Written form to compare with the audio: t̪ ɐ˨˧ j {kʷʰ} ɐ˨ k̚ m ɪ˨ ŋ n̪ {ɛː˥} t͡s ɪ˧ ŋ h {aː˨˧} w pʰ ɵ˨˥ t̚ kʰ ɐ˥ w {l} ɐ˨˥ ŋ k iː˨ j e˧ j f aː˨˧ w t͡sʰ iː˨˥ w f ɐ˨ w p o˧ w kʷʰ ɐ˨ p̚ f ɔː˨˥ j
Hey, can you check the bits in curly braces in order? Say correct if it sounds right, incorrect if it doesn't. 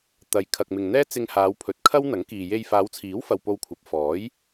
incorrect, correct, correct, incorrect

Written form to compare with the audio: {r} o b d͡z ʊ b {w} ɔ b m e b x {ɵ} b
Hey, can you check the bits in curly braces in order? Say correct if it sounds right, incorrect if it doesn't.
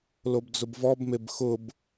incorrect, incorrect, incorrect

